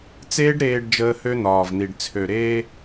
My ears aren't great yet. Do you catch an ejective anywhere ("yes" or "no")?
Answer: no